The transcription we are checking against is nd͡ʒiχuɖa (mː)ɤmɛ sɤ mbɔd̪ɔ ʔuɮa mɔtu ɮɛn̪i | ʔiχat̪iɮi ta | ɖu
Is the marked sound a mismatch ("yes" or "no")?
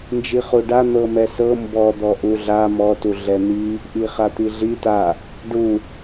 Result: yes